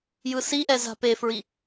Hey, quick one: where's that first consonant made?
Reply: palate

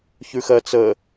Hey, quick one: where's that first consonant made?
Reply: palate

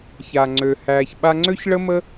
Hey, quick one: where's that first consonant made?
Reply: palate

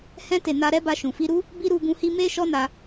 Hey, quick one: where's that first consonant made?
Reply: throat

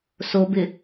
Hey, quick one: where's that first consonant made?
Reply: tongue tip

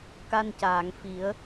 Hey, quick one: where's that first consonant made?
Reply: velum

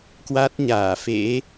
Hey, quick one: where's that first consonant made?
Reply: velum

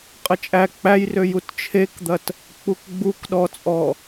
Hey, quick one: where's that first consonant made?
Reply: uvula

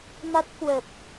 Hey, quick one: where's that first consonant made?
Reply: lips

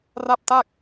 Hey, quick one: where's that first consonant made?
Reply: tongue tip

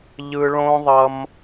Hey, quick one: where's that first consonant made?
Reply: palate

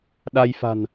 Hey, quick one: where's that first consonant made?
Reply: tongue tip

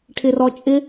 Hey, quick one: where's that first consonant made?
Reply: retroflex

